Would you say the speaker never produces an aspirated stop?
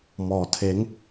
no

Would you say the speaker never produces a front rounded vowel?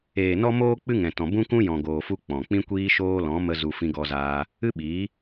yes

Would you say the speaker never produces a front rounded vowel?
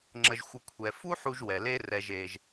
yes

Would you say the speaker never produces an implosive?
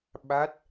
no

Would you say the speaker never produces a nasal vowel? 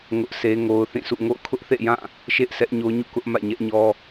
no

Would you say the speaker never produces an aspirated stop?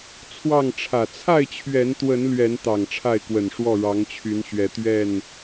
no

